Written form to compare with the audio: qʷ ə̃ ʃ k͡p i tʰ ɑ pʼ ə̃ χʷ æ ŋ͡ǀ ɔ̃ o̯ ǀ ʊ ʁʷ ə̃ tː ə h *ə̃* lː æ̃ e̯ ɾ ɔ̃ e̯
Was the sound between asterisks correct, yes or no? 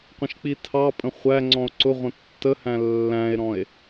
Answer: no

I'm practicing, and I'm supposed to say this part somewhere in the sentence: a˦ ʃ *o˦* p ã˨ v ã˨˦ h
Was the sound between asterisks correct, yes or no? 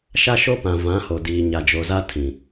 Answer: yes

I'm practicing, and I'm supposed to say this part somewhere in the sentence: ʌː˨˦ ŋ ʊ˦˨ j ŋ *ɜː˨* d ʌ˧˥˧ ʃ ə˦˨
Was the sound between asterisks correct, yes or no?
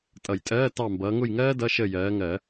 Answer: no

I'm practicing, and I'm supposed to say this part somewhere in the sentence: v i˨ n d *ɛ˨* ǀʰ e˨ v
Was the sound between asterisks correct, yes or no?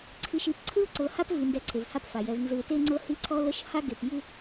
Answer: yes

